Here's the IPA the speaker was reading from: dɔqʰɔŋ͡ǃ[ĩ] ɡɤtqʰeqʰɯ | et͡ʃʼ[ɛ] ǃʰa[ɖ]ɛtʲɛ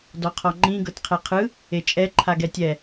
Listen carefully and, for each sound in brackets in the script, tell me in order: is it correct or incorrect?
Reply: correct, correct, incorrect

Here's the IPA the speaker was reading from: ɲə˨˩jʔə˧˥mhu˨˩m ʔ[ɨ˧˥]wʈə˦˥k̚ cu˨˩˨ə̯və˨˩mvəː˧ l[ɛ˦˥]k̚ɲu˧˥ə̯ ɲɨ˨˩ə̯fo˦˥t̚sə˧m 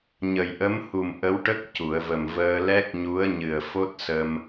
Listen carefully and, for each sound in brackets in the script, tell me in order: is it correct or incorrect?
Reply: incorrect, correct

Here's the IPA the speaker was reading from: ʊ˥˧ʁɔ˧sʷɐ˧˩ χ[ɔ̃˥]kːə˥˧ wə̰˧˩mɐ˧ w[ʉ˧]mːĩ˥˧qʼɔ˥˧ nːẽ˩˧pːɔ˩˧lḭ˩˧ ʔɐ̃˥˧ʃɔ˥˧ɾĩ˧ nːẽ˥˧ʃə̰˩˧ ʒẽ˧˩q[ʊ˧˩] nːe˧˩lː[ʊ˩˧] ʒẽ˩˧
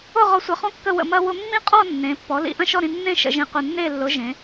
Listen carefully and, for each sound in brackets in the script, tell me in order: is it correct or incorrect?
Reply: correct, incorrect, correct, correct

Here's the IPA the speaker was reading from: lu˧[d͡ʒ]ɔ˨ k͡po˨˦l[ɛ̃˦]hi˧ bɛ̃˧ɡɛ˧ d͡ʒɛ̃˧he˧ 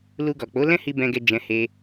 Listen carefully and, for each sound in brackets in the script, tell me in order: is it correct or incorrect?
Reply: incorrect, correct

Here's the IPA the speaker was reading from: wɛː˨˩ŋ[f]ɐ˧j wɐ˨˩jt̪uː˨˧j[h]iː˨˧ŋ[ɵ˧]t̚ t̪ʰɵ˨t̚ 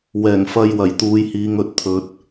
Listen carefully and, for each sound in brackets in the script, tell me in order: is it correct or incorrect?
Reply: correct, correct, correct

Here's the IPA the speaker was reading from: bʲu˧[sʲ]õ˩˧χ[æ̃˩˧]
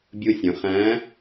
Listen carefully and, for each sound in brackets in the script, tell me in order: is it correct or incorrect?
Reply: correct, incorrect

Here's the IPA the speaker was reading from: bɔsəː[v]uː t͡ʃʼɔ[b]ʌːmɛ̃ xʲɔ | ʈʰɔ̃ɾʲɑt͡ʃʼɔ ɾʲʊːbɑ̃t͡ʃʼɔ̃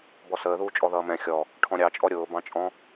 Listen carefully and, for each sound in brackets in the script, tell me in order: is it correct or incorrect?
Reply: incorrect, incorrect

